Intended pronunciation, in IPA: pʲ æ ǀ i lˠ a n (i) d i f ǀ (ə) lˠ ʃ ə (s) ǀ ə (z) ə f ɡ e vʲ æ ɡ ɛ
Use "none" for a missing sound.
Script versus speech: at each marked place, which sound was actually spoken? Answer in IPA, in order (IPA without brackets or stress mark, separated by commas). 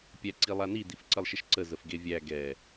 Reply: i, ə, ʃ, z